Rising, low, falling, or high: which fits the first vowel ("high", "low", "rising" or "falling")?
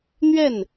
falling